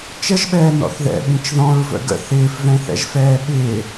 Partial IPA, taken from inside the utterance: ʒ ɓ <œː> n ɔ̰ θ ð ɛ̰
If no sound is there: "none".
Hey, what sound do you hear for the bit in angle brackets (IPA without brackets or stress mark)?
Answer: ɛː